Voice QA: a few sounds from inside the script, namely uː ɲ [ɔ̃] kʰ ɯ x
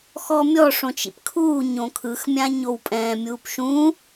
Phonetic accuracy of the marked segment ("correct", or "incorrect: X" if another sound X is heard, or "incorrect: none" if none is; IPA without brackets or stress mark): incorrect: õ